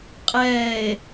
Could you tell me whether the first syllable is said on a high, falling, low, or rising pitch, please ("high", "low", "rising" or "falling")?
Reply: low